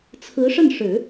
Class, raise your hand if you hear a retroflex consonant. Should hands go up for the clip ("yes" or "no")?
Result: yes